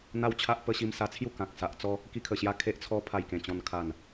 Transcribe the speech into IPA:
n̪ a˦ w t͡ɕʰ a˦ ʔ p ə˧ ɕ i˧ m s a˧ t͡sʰ j u˥˧ k ã˨ k̚ s a˨ ʔ t͡s ɔ˦ | k i˧ kʰ ə˨˩ ɕ j a˧ kʰ e˦ ʔ t͡sʰ ɔ˦ pʰ a˧ j k ẽ˨˩ t͡ɕ ɔ̃˧ n kʰ a˨˩ n

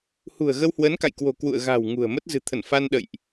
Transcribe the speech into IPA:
h ṳ˨˩ ə̯ ɣ ə˧ w h w ə˨˦ n k a̰˧˨ j k w o̤˨˩ k w ṵ˧˨ ə̯ ɣ a̤˨˩ w ŋ ṳ˨˩ ə̯ m ə˦˥ t̚ z ɨ̤˨˩ t̪ʰ ə˧˩ n f a˧ n ɗ ə̰˧˨ j ʔ

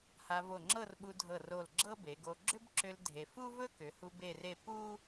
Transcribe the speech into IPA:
h a˧ v o˧˩ ŋ͡ǁ ɤ˥˧ r ɓ u˧ dʱ ɤ˧˩ r o˧˩ l ɡ͡ǁ ɤ˥ b e˩˧ ɡ o˧ ɡ͡ǁ ʏ˥ b ǁ ʏ˧ l dʱ e˧ f u˥ v ɵ˥ k ʏ˩˧ h u˧ b e˥˧ r e˥˧ p u˥

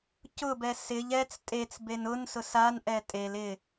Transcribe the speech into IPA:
c ʊ b ɛ s ɪ ʎ ɛ t͡s tʼ e t͡s b e n ʊ n s ʊ s a n ʔ ɛ tʼ e l ɪ

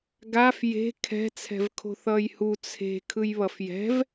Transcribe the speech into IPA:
ɡ a f j e̤ kʰ ɛ̤ t͡sʰ ɛ̤ v kʰ o̤ θ ʌː j h u t͡sʰ e̤ kʰ ɯ j β ʌ f j ɛ̤ v

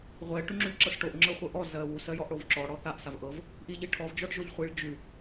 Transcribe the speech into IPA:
ʁʷ ɛ ʈ ʉ ŋ͡ǁ ʉ ʎ ǁ ɤ s ʈ o ʔ ŋ͡ǁ ɤ χʷ ɤ ʔ ɔ z ɜ w u s ɜ j ɔ ʔ ɽ o v ǁ ɔ ɽ ɔ θ a ʔ s a v ʔ ɤ v | ʔ i ʎ i ʈʰ ɔ v d͡ʒ ɔ ɖ ʒ o ʎ χʷ i ɭ d͡ʒ ʉ

